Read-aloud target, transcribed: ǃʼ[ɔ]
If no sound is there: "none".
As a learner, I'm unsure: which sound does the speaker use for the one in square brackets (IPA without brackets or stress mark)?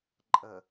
ə